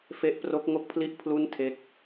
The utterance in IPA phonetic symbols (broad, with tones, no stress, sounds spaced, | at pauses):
f e˦˥ ʔ p r o˦˥ k̚ ŋ o˥˩ k̚ pʰ l i˥˩ ʔ pʰ l u˥˩ n tʰ e˦˥ k̚